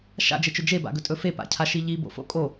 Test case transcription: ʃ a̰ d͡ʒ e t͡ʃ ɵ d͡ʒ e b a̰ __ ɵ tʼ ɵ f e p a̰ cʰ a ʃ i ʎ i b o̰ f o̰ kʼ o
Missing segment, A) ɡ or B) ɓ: A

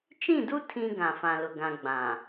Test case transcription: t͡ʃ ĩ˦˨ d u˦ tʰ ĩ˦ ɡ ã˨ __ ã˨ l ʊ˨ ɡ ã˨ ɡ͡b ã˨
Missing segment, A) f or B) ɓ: A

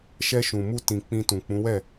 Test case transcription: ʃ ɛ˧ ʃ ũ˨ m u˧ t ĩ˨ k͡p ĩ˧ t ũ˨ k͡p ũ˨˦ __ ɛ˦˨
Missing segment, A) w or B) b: A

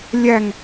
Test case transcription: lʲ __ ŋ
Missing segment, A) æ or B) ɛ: A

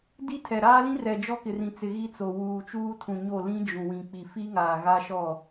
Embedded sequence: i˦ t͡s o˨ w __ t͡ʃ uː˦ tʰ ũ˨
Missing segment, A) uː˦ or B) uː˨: B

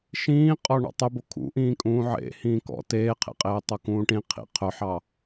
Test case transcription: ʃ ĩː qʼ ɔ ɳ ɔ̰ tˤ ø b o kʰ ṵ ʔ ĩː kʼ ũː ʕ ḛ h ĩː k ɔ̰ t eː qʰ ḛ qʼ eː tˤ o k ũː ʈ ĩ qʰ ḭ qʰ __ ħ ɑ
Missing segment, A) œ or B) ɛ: A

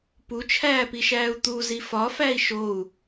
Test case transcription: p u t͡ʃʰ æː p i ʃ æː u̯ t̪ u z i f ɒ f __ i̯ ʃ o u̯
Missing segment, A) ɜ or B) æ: B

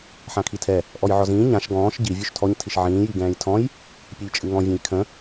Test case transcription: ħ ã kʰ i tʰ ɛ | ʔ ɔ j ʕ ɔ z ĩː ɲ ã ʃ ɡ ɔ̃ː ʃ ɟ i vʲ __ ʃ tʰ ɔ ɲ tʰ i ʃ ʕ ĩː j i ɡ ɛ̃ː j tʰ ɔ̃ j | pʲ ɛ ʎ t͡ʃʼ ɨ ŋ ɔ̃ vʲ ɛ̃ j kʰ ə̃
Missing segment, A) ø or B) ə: A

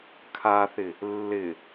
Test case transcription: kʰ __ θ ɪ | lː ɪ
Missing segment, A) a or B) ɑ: A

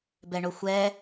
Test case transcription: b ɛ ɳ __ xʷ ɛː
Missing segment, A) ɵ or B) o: B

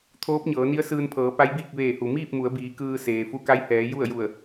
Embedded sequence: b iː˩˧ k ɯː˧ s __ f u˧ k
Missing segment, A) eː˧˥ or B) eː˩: B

